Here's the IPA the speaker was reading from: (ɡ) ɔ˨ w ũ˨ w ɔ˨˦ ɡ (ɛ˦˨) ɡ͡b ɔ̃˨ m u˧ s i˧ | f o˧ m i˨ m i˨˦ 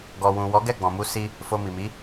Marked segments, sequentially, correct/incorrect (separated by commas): correct, correct